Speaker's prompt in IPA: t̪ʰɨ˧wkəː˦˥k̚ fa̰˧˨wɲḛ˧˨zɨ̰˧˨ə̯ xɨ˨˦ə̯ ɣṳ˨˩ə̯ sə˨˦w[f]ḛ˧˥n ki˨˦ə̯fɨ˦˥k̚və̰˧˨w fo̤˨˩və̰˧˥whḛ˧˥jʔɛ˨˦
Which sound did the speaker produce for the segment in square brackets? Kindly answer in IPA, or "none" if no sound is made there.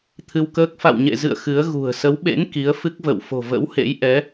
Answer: ɓ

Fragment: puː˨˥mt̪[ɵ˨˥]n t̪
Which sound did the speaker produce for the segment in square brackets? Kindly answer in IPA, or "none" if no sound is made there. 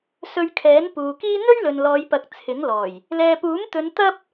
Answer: ɵ˨˧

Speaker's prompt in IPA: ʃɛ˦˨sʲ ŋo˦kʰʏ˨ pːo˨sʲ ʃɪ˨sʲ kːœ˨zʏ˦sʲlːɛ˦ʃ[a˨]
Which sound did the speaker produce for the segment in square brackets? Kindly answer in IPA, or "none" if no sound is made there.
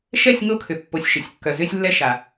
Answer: a˨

